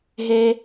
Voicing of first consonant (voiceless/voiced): voiced